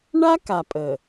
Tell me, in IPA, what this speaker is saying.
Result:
ɳ a˦ k a˨ pʼ ə˨

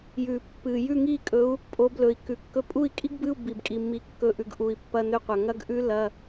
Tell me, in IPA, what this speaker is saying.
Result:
j ʉ˨˩ pː ɨ˨˩ j ʉ˥˨ ŋ i˥˨ kʼ ɵ˨˦ u̯ | pʼ o˨˦ b l ɵ˨˩ i̯ k ʉ˨˩ kː ɵ˦˥ pʼ u˥˨ i̯ kʼ i˦˥ ɡ b ɨ˧˥˧ u̯ b i˨˩ b kʼ i˨˩ mː i˨˦ kː ɵ˧˥˧ ʔ ʉ˨˦ ɡ ʔ u˨˩ i̯ pː ɐ˧˥˧ n ɵ˥˨ qʷ ɐ˨˩ ŋ ɐ˦˥ ɡ ʔ ʉ˦˥ l ɐ˧˥˧

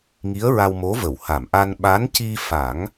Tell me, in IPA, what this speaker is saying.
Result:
ŋ i˧˥ ə̯ ɹ a˧ w m o˧˥ v ə˨˩˨ w h a˨˩˨ m ʔ a˧ n ɓ a˧˥ n c i˧ f a˨˩˦ ŋ

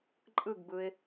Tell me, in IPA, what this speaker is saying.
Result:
ǃʼ ɯ ɡ b ɯ ɪ̯

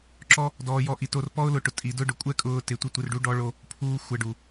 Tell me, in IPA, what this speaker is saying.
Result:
ǁ ɔ˦ | d ɔː˧ j ɔ˧ ʔ i˨ t o˧ r p ɔ˦ ʊ̯ l ʊ˧ ʈ ʊ˨ tʼ i˨ d ʊ˦ ɖ ʊ˨ kʷʼ ɛ˦ kʼ ʊː˧ t ɪ˨ tʷ ɪ˧ tʷ ɪ˨ r ɖ u˧ ɖ ɔ˧ ɭ o˧ | pʰ uː˦ xʷ ɛ˧ ɖ u˨

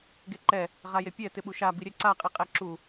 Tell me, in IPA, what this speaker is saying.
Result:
ɡ e ǃ ɛ | ʁ a j e pʲ ɛ t ɪ ɓ u ʃ a b i ɾʲ ɛ ǀ a qʼ i qʼ ɛ ǁ u

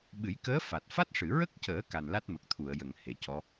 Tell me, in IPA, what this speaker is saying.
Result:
ɓ ɨ˨˩˦ j k əː˧˥ f a˨˩ t̚ f a˦˥ t̚ ʂ ɨ˨˩˨ ɹ ə˦˥ k̚ c əː˨˩˦ k a˨˩ n l a˦˥ t̚ m ə˨˩ k̚ t̪ʰ u˨˩˨ ə̯ j ə˨˩˨ ŋ h e˨˩˨ c ɔ˧˥

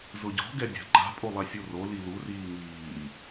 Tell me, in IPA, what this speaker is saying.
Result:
z ʊ ɟ ɔ̤ ɡ ɛ dʲ a̤ ǃ a̤ pʼ o lˠ ɛ sʲ o r o l i l u r iː ŋ iː

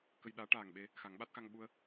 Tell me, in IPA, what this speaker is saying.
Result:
k ə˧ j ɗ aː˧˥ ʈ aː˨˩ ŋ ɓ e˧ | x a˨˩˦ ŋ ɓ a˦˥ t̚ x a˧ ŋ ɓ u˧ ə̯

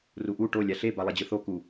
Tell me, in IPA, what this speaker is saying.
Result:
r u ʔ u ʈ o lʲ a ɬ e b a lˠ e d͡ʑ ɯ θ o k u

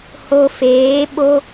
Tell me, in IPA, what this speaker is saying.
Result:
h o˧ f eː˨˦ ɓ o˦

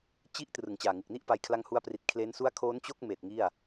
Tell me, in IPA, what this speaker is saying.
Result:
t͡ɕ i˦˥ ʔ t r ɯ˨˩ ŋ t͡ɕ aː˨˩ ŋ ɯ˨˩ k̚ n i˥˩ ʔ p a˦˥ j kʰ l a˥˩ ŋ h u˥˩ a̯ p r i˨˩ t̚ kʰ l e˦˥ n s u˥˩ a̯ kʰ oː˦˥ n t͡ɕ o˥˩ k̚ m eː˨˩ t̚ ŋ i˥˩ a̯

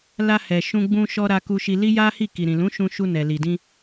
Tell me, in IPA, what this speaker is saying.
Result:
l a˧ h ɛ˨ ʃ ũ˧ ɡ͡b ũ˧ ʃ ɔ˧ ɾ a˧ k u˧ ʃ i˧ l i˦ j a˦ h i˦˨ k i˨ ɾ ĩ˨ l ũ˨˦ ʃ ũ˧ ʃ u˧ n ɛ˨ l i˨ d ĩ˧

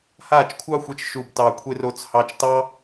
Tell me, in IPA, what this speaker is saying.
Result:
h aː˦˨ t͡ʃ kʷʰ ɑ˦ xʷ ɛ˧ t͡ʃ ʃ u˨ b t ɑː˨ kʷʰ e˧ r o˧ t͡s h ɑ˧ t͡ʃ t ɑ˦

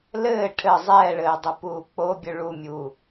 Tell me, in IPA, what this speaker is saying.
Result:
l ɘː ʈʰ ɘ zˤ ɛː ɭ ɘː dˤ ɘ p uː k͡p o bʲ ɵ ɭ u mʲ uː

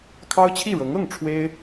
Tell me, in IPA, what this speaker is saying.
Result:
kʰ ɑ˥ ʊ̯ t͡ɕʰ i˥˩ ɻ ɤ˧˥ ŋ ɤ˥˩ ŋ ʈ͡ʂʰ w e˥ ɪ̯

